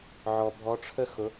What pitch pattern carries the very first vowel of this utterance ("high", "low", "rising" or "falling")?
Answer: low